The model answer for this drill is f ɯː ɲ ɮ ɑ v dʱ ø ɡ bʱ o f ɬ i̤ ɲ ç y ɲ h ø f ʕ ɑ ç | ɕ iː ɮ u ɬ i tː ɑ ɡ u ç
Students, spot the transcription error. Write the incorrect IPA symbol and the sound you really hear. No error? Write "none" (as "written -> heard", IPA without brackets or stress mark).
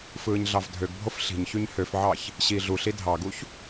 tː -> dʱ